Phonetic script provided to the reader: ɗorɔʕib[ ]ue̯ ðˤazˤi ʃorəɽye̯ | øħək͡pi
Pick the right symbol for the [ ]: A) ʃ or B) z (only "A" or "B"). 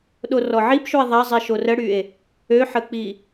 A